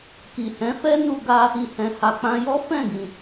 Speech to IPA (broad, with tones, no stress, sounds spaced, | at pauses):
k i˨ h ɛ̃˨˦ f ɛ˦ n u˧ ɡ a˧ | i˨ h ɛ̃˨ h a˨ k͡p ã˧ j ɔ˦ f ɛ̃˦˨ ɡ ĩ˨